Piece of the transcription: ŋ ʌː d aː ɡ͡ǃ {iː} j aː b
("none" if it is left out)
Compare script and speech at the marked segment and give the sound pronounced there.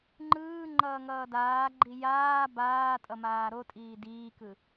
i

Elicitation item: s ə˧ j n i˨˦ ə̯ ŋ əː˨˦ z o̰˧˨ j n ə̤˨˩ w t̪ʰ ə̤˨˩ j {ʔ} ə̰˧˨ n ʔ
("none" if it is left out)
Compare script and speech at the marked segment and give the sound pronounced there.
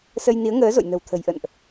ʔ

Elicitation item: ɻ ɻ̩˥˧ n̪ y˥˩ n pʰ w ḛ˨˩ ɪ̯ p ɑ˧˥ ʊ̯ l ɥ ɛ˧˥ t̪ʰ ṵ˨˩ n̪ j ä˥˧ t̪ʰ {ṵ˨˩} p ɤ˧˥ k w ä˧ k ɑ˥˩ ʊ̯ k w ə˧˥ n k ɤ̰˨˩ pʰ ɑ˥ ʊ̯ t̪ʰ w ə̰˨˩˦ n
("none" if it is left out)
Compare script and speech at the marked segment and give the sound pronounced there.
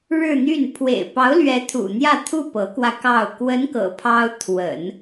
u˥˩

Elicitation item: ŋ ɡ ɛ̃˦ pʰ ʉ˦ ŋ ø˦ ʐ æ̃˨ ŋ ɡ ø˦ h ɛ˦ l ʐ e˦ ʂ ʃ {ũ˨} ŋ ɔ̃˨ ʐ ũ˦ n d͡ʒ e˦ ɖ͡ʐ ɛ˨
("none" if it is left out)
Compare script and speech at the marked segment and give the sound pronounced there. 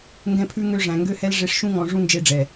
ũ˦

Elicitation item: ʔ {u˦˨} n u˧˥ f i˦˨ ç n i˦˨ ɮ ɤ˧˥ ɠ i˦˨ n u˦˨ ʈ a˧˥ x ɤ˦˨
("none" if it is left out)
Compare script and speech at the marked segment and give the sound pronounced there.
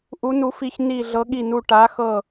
u˧˥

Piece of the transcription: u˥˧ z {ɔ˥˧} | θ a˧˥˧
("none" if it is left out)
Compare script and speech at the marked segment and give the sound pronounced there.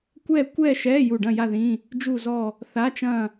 ɔ˥˧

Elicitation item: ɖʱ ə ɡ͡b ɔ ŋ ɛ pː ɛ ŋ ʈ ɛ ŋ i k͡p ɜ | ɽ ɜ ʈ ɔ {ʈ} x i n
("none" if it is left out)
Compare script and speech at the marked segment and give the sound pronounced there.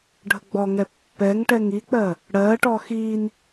none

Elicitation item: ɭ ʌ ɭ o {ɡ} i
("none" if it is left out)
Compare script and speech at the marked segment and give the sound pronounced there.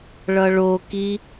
k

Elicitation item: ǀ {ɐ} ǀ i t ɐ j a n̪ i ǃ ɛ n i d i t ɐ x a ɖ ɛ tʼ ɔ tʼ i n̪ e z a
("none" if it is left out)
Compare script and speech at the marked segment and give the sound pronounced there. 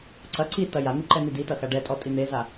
ɐ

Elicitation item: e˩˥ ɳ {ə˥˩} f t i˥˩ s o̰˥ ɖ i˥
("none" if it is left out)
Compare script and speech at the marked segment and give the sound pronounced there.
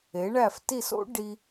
æ˥˩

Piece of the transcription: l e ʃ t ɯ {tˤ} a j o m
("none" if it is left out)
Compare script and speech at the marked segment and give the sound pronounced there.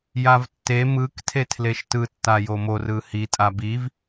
tː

